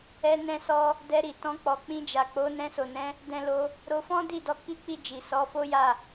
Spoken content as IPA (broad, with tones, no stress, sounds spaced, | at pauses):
ɛ˧ n ɛ̃˧ s ɔ˧ | d ɛ˧ ɾ i˨ t ɔ̃˧ k͡p ɔ˨ k͡p ĩ˧ d͡ʒ a˨ k͡p o˨˦ n ɛ̃˧ s o˨ n ɛ̃˨˦ | d ɛ̃˧ l o˧ | ɾ o˧ f ɔ̃˦ d i˦˨ d ɔ˧ k i˦ k͡p i˦˨ d͡ʒ i˨ s ɔ˨˦ f o˦ j a˦˨